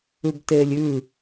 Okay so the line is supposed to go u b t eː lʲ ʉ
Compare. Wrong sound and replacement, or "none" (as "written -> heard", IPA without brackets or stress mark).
u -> ʉ